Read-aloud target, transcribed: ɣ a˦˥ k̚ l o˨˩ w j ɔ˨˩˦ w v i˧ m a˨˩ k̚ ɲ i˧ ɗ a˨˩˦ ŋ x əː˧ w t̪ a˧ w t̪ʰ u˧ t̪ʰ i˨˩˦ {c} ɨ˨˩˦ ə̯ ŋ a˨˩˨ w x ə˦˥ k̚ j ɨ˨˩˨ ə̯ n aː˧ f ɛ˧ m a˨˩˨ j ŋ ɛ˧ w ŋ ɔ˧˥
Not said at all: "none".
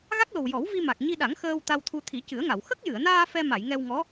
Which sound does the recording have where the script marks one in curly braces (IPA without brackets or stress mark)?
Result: c